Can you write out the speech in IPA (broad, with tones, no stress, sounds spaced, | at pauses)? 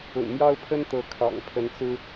ʊ̰˨˩ ŋ m j ɑ˦ ʊ̯ pʰ ə˦ n t̪ ɤ˨˦ kʰ ɑ̰˨˩ ŋ pʰ ə˨˦ n t͡s ɹ̩˦